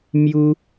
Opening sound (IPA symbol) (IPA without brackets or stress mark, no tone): m